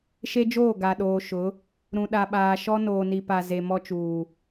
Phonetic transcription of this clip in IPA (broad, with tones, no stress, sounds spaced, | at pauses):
ʃ e˦ d͡ʒ oː˦˨ ɡ a˨ ɗ oː˨ ʃ ʊ˨˦ | ɾ ũ˨ ɗ a˨ ɓ aː˨ ʃ ɔ˦ n oː˨ n i˨ p a˨ z e˨ m ɔ˦ t͡ʃ uː˨